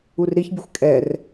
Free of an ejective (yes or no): no